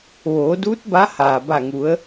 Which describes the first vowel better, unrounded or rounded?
rounded